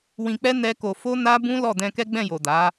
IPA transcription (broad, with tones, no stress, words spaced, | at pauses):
wĩ˧k͡pɛ˦ nɛ˦ko˧ fo˦na˦ bũ˦ lɔ˦˨dɛ̃˧kɛ˦ ɡ͡bɛ̃˦˨jo˨ da˨˦